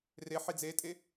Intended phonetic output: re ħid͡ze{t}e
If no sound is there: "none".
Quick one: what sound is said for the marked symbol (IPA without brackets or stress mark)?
tʼ